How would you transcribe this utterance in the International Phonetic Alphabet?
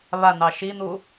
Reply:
β a n̪ ɑ ʃ i n̪ u

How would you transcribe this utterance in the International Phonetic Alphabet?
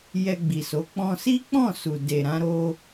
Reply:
j ɛ˧ ɡ͡b i˨ s o˨˦ k͡p ɔ̃˧ s i˦ k͡p ɔ̃˦˨ s u˨ d e˨ ɾ ã˧ ɾ o˧

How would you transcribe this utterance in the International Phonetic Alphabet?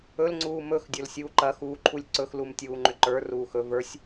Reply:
ɵ l ŋ͡ǀ uː m ɵ x dʲ ɵ l sʲ uː ǃ ɐ x uː ǃʰ u lʲ ǀ ɵ x l u m tʲ uː ŋ͡ǃ ʏ ǃ ə˞ r uː x ɵ v ə˞ sʲ

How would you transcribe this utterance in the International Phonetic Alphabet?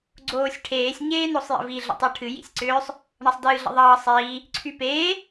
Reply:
ɡ͡ǀ oː sʲ ʈʰ eː sʲ ɲ eː n o sˤ j ə̰ v i ɮ ə̰ tˤ u ʈʰ ɨ j ḭ sʲ ǀ ʏː sˤ | ɳ ʌ sˤ d ɨː ɮ ə̰ ðˤ ʌː sˤ iː | ǀʰ y p eː

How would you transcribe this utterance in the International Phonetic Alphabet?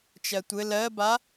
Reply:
t͡ʃ ɜ tʷ ɘ l ɜ b a

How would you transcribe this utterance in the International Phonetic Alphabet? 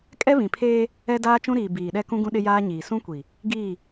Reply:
kʼ ɛ˦ β ĩ˨ pʰ eː˦ | ɛ˦ d aː˦ t͡ʃ ũ˦ ɾ iː˨ b iː˨ ɗ ɛ˦ k ũ˦ ɡ ũ˦ ɗ ɪ˦ j aː˦ ɲ iː˨ s ũ˦ kʷ i˨ | ɡ iː˦˨

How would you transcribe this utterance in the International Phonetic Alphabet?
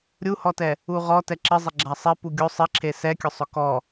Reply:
ɾʲ u h ɔ t ɛ | u ʁ ɔ t ɛ ǁ ɪ zˤ ɪ ɡ͡ǁ a sˤ e p u ɡʲ o sˤ ɪ ǁʰ e s ɛ kʲ ʊ sˤ ʊ k ɔ

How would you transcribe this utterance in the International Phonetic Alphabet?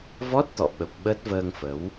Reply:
v ɔ˦˥ t̚ t̪ ɔ̰˧˨ ɓ ə˨˩ p̚ ɓ ə˦˥ t̚ v əː˧ ŋ f ə˨˦ w

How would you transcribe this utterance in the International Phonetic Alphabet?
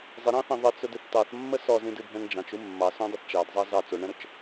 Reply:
zˤ ɪ ɾ ɑ̃ θ ɛ̃ ðˤ ə t͡s ʊ d ɪ θ t ɑ θ mː ə s ɔ z ĩ d ɨ bʱ ɛ̃ ŋ d͡ʒ ɑ̃ t͡ʃ u mː ɑ s õ dˤ ɪ θ t͡ʃ ɑ d zˤ ɑ z ɑ t͡s o ɳ ɛ̃ ɾ ʊ t͡ʃ

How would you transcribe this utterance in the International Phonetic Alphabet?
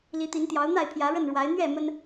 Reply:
l i˨˦ t̪ i˨˦ n t̪ j ɑ˨˦ ʊ̯ n̪ a˥˨ ɪ̯ pʰ j ä˨˦ ɻ ə˥˨ n ɻ w a˨˦ ɪ̯ n̪ ɥ ɛ˥˨ m ə˦ n

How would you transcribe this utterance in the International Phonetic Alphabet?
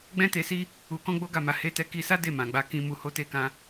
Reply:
ɡ͡b ɛ̃˦ t e˧ s i˦ | u˧ k ɔ̃˦ ɡ͡b o˦ ɡ a˦˨ m a˧ h e˧ t ɛ˧ k i˧ s a˦ d e˦˨ m ã˨ ɡ͡b a˧ k ĩ˧ m u˧ h o˦ t e˦ k ã˦

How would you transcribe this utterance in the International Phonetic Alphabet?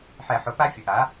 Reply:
ħ ɛ˧˩˧ ħ ʊ˩˥ p a˦˥ fʲ ɵ˩˥ ʔ a˩˥

